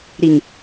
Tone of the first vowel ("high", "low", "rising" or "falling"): low